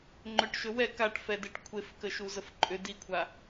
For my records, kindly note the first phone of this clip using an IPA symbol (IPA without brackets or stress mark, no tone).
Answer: ŋ͡ǃ